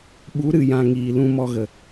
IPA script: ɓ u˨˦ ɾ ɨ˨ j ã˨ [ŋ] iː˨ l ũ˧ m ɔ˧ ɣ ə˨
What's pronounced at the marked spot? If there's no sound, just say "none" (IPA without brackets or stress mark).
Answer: ŋ